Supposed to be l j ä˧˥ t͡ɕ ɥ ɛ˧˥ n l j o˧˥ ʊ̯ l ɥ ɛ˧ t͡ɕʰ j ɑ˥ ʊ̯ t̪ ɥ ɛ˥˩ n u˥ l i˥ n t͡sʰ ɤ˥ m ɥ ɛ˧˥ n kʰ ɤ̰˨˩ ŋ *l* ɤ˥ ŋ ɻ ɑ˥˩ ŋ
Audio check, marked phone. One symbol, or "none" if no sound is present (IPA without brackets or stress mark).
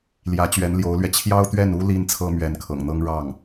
n̪